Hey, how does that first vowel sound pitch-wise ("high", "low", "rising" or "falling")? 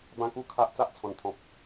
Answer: high